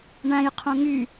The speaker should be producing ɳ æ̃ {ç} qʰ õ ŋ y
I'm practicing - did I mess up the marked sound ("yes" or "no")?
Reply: yes